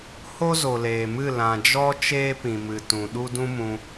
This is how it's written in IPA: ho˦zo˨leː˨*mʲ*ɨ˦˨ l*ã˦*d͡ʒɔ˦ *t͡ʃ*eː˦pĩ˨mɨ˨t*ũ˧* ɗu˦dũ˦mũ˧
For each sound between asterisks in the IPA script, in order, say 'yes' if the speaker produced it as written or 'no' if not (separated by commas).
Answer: no, no, yes, no